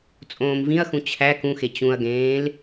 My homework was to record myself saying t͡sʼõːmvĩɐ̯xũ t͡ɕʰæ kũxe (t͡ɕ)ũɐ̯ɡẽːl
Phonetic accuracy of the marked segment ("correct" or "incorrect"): correct